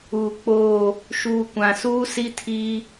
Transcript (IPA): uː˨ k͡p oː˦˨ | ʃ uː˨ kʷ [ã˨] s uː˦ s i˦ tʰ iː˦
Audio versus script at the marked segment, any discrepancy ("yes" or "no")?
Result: no